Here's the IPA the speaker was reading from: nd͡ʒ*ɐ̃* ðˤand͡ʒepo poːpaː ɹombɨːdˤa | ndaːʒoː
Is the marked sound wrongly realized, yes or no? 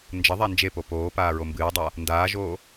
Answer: yes